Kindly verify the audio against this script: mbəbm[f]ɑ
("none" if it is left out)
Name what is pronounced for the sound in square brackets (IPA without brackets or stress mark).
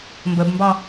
b